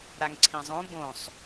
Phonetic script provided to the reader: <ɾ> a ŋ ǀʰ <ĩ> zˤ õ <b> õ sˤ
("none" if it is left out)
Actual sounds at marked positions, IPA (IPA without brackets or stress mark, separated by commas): ɾ, ĩ, b